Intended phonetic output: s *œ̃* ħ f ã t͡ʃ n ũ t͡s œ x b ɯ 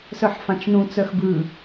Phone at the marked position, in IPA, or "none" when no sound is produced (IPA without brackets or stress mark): œ